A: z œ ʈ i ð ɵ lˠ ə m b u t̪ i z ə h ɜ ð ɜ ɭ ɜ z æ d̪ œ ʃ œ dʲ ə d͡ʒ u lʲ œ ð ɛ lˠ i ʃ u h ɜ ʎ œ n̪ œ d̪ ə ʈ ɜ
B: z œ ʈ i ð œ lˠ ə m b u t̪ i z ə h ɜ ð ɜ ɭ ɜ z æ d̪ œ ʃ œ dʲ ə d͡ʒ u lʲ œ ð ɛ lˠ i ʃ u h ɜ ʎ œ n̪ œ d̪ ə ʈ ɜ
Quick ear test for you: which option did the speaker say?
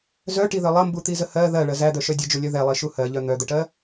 B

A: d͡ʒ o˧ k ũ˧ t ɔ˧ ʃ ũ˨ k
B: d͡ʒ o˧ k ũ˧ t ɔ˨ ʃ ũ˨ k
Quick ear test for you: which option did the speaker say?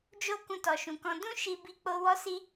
B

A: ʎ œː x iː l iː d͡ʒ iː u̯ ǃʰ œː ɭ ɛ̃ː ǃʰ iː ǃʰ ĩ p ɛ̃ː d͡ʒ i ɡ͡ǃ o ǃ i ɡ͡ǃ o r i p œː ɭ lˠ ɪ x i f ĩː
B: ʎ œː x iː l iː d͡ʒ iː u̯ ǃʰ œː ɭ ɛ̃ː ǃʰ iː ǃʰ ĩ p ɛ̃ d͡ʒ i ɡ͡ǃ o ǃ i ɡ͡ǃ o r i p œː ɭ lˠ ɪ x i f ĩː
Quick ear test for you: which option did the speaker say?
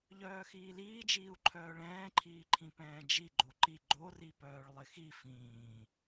A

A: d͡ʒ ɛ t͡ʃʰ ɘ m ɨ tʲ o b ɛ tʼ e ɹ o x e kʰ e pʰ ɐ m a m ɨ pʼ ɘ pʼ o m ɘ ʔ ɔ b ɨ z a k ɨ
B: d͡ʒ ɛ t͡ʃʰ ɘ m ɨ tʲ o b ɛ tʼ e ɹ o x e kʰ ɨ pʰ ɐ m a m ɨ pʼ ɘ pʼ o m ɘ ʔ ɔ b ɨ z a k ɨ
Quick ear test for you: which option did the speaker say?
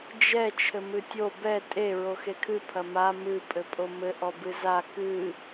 B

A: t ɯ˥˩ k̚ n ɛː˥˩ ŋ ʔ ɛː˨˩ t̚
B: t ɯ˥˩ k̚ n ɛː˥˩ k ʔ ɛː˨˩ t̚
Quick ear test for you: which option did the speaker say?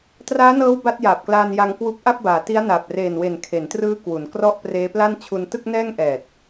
A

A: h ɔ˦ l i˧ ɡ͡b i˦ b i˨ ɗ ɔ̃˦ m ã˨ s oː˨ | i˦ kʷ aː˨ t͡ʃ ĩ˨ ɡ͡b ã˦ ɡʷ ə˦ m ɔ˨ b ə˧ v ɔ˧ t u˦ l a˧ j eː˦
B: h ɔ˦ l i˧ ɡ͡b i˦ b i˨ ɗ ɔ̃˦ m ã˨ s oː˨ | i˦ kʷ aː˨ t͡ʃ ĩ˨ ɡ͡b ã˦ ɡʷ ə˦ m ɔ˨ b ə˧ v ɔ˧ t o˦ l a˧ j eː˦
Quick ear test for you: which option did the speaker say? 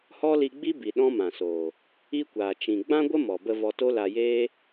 B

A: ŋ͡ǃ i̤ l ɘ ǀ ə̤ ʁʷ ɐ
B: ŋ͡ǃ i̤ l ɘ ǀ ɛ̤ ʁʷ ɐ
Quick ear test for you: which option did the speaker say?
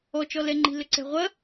B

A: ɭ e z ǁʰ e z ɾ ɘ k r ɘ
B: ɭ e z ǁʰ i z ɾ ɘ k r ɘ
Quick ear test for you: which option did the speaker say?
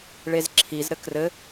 B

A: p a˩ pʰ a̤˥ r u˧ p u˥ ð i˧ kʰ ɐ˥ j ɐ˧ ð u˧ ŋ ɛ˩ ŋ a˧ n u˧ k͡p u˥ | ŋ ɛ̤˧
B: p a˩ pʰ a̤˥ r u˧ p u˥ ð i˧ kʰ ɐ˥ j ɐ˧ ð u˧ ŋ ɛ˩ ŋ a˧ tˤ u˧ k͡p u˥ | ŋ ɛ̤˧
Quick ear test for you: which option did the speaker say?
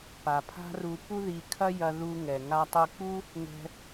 B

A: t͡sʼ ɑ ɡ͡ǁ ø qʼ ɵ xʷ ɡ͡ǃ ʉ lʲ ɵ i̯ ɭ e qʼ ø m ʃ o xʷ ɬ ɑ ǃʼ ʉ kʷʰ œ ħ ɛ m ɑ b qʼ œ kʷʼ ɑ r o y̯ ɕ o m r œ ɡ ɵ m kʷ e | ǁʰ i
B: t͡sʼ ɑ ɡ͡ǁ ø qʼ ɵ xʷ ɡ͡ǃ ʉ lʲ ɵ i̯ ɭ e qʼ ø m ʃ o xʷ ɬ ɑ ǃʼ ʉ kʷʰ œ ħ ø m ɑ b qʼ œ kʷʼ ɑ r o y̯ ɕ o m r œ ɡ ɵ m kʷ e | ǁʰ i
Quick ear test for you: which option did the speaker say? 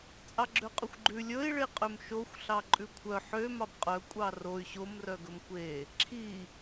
B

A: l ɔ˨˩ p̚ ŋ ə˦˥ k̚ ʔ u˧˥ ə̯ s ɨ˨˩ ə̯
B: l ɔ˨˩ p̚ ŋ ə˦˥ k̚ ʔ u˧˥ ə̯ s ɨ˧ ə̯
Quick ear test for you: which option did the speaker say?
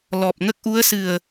A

